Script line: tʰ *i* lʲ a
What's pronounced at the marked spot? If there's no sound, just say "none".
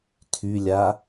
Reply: y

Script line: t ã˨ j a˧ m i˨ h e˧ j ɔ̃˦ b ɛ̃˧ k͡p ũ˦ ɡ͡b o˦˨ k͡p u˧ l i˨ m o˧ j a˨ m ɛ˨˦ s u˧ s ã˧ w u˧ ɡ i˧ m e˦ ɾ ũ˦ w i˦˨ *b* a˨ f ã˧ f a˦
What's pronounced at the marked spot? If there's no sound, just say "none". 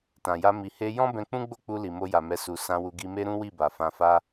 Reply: b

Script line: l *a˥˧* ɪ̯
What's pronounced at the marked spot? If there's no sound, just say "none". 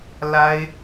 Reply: a˥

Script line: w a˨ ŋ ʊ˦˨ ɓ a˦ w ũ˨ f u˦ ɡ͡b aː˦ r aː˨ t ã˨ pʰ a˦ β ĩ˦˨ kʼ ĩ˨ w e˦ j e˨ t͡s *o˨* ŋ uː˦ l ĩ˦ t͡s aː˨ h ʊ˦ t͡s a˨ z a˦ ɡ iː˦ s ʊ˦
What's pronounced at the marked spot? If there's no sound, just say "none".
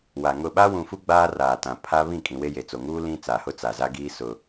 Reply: o˨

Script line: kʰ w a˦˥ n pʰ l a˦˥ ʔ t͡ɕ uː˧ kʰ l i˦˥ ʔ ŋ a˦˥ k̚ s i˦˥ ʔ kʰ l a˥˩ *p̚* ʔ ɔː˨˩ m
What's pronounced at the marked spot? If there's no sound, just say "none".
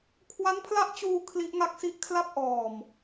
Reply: p̚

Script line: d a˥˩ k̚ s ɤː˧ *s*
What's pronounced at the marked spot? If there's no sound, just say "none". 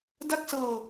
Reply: none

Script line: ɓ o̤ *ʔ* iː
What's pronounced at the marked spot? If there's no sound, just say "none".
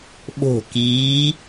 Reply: k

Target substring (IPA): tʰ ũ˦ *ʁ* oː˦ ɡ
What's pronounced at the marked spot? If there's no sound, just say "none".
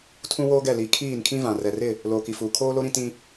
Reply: w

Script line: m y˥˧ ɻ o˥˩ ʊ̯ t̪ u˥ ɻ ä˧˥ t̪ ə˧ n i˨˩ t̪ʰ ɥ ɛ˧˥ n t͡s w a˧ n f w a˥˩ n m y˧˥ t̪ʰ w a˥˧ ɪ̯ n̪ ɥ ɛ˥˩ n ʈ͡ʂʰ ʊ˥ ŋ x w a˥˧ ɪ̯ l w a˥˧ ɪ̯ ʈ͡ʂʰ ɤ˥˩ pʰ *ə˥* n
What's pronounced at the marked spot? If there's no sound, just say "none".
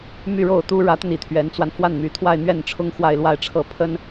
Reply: ə˥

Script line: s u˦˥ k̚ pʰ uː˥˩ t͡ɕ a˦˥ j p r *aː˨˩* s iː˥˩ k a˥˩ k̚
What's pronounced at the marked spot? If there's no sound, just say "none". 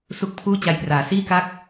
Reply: aː˨˩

